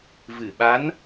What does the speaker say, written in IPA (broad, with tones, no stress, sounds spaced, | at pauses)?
v ɨ˨˩˨ ɓ a˧˥ n